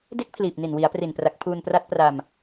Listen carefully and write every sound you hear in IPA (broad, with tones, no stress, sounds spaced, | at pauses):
d e˦˥ k̚ pʰ l iː˨˩ p̚ n i˨˩ n w i˩˦ a̯ p r i˨˩ n p r a˨˩ k̚ pʰ uː˧ n p r a˦˥ t̚ p r a˧ m